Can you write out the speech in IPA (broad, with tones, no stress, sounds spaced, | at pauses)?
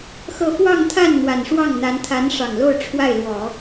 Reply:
x ɤ˥˧ f w ɑ˥˧ ŋ t̪ʰ a˥˩ n n̪ w a˨˩ n ʂ w ɑ˥˩ ŋ n̪ a˧˥ n t̪ʰ a˧˥ n ʂ ɑ˨˩ ŋ l o˥˧ ʊ̯ ʈ͡ʂʰ w a˥˩ ɪ̯ l w ɔ˨˩˦